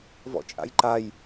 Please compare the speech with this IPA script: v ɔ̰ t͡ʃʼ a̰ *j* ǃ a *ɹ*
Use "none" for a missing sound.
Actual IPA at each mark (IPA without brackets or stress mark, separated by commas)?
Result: j, j